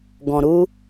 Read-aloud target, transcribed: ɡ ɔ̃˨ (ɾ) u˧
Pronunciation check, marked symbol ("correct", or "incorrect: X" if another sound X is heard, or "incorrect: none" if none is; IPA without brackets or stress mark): correct